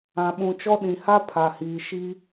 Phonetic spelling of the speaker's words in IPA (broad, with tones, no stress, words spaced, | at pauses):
ã˨ɓũ˨t͡ʃɔ˦ ɗĩ˨ha˦ pʰa˨hiː˨ ʃi˦